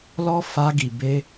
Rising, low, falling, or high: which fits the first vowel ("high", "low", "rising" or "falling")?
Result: high